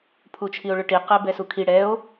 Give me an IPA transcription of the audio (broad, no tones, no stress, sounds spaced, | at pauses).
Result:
pʰ u t͡ʃʰ i o̯ ɭ ɵ ʈ i q ɛ b ɛ s u kʰ i ɽ ɛ o̯